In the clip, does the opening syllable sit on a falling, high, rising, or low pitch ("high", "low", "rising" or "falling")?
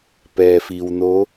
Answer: low